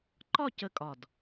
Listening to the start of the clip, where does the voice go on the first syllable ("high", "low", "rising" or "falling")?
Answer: falling